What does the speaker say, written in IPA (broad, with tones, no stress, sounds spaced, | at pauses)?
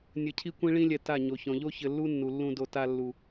nʲ ɘ˧ cʰ i˦ kʷ ĩ˦ ɭ ĩ˦ lʲ ɛ˧ t a˦˨ ɲ o˨ ç ɔ̃˨ ʎ o˦ ç ɘ˧ lː u˦ nː u˨ lː ũ˧ d o˧ t a˧ lː u˨